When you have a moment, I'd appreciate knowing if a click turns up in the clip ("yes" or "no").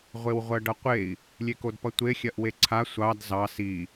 yes